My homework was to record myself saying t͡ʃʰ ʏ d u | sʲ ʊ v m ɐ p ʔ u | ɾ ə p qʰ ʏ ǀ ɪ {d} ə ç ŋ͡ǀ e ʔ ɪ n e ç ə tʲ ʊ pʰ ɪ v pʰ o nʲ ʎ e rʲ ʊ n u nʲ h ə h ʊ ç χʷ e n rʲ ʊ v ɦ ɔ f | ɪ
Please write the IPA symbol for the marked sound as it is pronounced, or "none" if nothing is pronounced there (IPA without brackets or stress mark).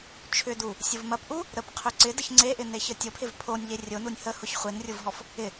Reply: d